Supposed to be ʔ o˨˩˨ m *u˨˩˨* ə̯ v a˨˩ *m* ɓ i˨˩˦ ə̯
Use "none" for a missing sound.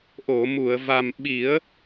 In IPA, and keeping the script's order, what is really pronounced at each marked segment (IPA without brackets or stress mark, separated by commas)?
u˨˩˨, m